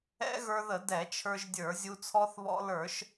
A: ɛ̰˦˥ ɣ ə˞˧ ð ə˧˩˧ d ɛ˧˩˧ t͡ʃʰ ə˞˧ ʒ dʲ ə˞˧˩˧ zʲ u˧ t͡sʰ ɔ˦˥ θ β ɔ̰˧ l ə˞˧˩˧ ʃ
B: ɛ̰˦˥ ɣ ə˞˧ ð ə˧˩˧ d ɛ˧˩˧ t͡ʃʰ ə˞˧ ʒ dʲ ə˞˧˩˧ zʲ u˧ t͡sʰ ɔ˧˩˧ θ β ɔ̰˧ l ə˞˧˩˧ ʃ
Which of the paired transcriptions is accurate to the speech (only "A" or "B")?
A